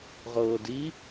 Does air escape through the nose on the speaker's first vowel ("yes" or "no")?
no